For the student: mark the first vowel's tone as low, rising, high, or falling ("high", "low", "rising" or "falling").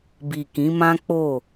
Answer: low